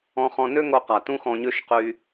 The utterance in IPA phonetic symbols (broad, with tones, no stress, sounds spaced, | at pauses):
ɔ̃˧ χ ɔ̃˧ n ø˥ ŋ o˧ q a˩ t ũ˥ x ɔ̃˧ ɲ ø˥ ʃ q y˧